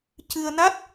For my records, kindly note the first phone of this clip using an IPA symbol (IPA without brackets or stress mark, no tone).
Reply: c